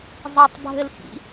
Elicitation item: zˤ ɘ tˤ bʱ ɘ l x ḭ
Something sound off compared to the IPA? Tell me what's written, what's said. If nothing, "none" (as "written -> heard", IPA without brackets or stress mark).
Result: none